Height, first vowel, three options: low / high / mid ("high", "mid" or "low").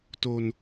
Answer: mid